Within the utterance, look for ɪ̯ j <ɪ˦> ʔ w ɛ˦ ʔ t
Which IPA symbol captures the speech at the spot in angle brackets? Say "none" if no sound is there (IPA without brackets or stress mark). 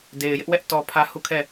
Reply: ɪ˦